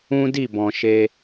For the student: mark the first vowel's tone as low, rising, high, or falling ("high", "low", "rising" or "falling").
high